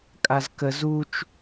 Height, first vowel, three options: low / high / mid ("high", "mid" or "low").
low